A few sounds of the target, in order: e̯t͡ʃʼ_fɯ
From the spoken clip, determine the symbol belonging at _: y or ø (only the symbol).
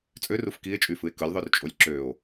y